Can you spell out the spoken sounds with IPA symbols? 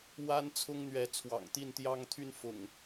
w a˦ n t͡sʰ ʊ˦ ŋ n̪ ɥ ɛ˨˦ t͡sʰ w ɑ̰˨˩ ŋ t̪ i˥˨ n t̪ j ɑ˦ ŋ t̪ʰ y˥˨ n f ʊ̰˨˩ ŋ

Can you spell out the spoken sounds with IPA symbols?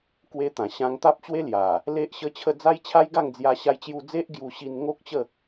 k w e˦ t̪ ã˨˩ ɕ ã˧ ŋ t̪ a˦ p̚ t͡ɕ w e˦ l j a˨˩ | l e˦ ʔ ɕ ə˦ t͡ɕʰ ə˥˧ d͡z a˦ j t͡ɕʰ a˦ j ɡ a˥˧ ŋ d͡z j a˧ ɕ a˧ j t͡ɕ j u˧ d͡z e˦ ʔ ɡ j u˧ ɕ i˧ n ŋ o˦ k̚ t͡ɕ ə˥˧

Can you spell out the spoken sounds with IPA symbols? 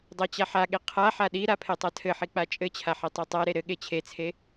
dˤ a t͡ɕ a ħ a ɠ e qʰ a ħ a ɗ i ɾ a pʰ e tˤ a tʰ ɘ ħ i k͡p a t͡ʃʼ ɘ t͡ɕʰ a ħ i tˤ e tˤ a ɾ e ɾ ɘ ɠ e t͡ɕʰ e t͡sʰ e

